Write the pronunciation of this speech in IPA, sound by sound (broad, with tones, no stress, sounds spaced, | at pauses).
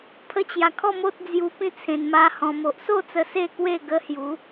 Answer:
pʰ ə˧ t͡ɕ j a˨˩ kʰ ɔ˥˧ m o˦ t̚ d͡z j u˧ p ĩ˥˧ t͡sʰ ẽ˧ n m a˦ h ɔ̃˧ m o˨ ʔ s o˥˧ t͡s ə˧ s e˥˧ k w e˥˧ ɡ ə˦ h j u˨˦